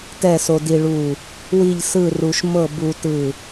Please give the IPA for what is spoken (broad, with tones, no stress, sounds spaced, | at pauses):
t ɛ˥˧ s o˧ d i˧ ɭ u˧˩ | w i˥˧ ʎ s ɯ˥˧ r u˧ ʃ m ɤ˥˧ b u˧ t ɯ˧˩